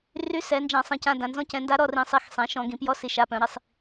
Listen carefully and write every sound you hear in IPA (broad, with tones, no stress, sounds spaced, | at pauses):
r y˧˥ s ɛ˩˧ n d͡ʒ ã˧˩˧ sˤ ĩ˩˧ c ã˩˧˩ d ã˩˧ n z ɔ̃˧˥ c ɛ̃˩˧ n d a˧˥ ɾ ɔ˩˧˩ r ĩ˧˩˧ sˤ i˩˧˩ x sˤ ɛ̃˩˧ ʃ ɔ̃˧˩˧ ɡ ĩ˧˩˧ p j ɔ˧˥ s i˩˧ ʃ a˩˧˩ p œ̃˧˩˧ ɾ i˧˩˧ sˤ